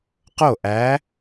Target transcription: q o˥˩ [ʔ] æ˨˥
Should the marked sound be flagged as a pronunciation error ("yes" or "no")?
no